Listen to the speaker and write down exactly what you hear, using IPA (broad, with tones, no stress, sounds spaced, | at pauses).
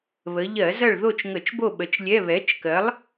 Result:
β ə˩˧ ʎ ɜ˧˩˧ z ɐ˦˨ ɭ ð o˦˨ t͡ʃ ŋ ə˧˩˧ t͡ʃ b o˦˨ ɓ ə˨˥ t͡ʃ lʲ ɛ˧˥˧ β ɛ˨˥ t͡ʃ k ɜ˨˥ lˠ